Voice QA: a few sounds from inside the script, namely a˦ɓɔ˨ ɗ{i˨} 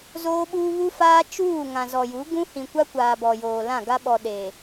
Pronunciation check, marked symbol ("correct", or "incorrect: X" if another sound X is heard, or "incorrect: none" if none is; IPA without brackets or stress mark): incorrect: e˨